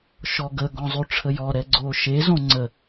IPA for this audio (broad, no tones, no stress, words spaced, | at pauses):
ʃɔɡə ɡɔ̃zˤʉʈ͡ʂʰəjɔ ɾɛɡ͡ǀoʃe zõŋ͡ǀə